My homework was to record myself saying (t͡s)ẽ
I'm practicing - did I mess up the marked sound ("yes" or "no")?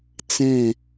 no